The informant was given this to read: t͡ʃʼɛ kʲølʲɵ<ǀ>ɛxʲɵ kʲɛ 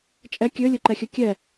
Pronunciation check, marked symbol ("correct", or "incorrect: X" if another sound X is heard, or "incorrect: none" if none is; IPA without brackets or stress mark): incorrect: ǃ